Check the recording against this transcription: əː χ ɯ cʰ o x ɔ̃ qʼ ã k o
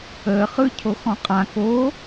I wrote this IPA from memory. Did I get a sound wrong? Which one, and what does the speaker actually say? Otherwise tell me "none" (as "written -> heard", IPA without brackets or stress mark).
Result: none